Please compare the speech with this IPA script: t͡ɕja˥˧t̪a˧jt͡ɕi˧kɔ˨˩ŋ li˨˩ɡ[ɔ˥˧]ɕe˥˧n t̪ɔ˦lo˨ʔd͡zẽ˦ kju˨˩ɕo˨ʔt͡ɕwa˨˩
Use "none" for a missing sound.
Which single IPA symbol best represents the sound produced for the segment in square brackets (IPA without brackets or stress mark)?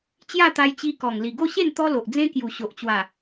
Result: o˥˧